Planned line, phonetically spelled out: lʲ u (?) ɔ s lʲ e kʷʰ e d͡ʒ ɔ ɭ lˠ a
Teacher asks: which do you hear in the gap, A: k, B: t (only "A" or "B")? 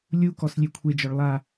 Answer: A